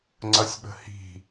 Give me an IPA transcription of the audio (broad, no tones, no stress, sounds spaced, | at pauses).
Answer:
ŋ͡ǀ ʌ sʲ ɓ ə̤ h i̤